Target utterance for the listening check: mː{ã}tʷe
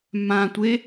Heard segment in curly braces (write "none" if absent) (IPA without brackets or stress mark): ã